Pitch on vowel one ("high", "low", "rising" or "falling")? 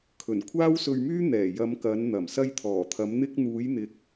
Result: low